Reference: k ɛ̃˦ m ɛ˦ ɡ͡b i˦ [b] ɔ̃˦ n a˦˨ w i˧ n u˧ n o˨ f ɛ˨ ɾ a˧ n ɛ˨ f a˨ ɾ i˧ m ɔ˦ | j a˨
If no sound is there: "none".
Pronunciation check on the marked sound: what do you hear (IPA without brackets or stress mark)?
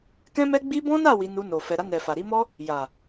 b